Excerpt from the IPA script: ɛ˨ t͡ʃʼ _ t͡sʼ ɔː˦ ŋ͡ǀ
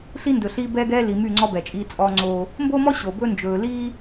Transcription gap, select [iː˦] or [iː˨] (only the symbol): iː˦